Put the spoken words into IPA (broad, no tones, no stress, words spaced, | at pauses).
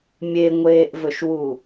mʲeŋʷeːʔvɵʃwu